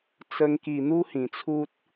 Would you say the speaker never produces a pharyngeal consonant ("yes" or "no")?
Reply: yes